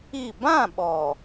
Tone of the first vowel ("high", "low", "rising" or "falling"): falling